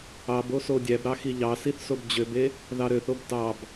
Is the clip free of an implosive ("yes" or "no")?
yes